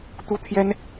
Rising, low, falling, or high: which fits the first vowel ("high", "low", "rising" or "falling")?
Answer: high